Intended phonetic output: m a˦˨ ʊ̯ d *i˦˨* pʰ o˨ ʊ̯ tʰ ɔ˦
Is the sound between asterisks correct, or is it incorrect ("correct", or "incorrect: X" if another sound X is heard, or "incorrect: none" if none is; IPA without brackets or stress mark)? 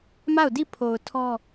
correct